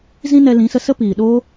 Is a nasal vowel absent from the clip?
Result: no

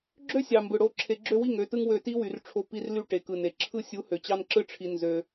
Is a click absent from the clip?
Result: no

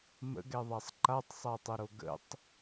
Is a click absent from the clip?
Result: no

